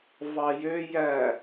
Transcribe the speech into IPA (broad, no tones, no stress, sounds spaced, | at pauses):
v ɑ j ø j æ